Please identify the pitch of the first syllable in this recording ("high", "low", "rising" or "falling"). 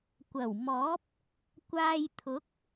low